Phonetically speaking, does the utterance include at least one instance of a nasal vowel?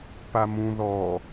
yes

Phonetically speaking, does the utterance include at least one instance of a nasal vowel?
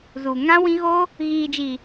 yes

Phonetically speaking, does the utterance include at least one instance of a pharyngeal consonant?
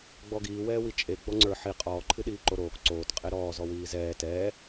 yes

